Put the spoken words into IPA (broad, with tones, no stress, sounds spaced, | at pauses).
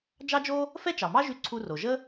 d͡ʒ ɑ˥ d͡ʒ o˥ | f ɛ˥ t͡ʃ ɑ˩ m ɑ˥ ʒ y˧ ǀʰ u˧ r o˩ ʒ ə˥